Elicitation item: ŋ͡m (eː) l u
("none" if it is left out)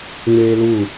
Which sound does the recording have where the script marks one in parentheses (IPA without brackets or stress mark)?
eː